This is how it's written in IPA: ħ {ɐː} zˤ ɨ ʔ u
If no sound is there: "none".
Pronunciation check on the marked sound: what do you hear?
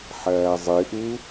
ɐː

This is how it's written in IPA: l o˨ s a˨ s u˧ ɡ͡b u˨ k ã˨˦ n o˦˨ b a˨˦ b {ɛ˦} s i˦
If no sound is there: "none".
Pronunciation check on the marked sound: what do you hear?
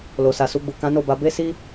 e˦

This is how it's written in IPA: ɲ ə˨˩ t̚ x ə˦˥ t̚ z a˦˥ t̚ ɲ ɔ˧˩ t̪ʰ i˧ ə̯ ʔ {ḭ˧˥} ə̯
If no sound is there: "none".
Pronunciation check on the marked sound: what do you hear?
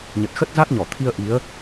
i˨˦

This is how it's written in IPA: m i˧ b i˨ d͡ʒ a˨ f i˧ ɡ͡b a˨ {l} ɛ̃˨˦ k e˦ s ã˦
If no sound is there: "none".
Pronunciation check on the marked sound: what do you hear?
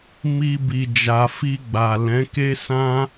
l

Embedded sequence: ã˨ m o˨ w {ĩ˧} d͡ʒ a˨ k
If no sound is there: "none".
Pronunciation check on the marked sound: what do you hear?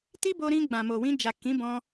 ĩ˧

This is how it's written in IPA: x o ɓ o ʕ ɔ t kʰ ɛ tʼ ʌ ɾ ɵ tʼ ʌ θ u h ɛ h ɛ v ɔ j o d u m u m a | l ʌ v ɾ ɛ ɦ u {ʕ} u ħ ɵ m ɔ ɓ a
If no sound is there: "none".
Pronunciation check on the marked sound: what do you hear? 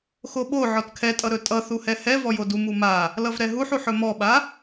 ħ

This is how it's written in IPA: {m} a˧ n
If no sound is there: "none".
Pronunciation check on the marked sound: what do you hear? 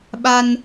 ɓ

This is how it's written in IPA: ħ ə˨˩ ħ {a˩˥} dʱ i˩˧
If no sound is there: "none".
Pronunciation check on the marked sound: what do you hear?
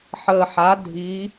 a˩˥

